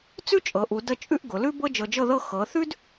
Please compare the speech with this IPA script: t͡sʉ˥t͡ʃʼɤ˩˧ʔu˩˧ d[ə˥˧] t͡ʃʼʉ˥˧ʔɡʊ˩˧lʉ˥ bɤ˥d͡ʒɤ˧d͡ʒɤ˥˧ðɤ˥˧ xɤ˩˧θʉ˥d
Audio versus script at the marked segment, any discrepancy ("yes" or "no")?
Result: no